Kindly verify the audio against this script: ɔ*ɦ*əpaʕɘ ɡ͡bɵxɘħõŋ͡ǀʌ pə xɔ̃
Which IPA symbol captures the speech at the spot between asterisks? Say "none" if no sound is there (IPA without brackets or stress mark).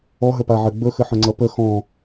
ɦ